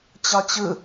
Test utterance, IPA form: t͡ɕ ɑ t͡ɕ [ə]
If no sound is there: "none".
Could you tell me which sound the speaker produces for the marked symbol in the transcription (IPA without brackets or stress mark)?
ɯ